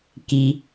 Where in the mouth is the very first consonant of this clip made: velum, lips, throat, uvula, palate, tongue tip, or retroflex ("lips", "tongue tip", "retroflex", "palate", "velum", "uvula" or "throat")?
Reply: velum